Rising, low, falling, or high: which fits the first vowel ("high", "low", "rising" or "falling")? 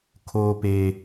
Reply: low